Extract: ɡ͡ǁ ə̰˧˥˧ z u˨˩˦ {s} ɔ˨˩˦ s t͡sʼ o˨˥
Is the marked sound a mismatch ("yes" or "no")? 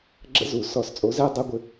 no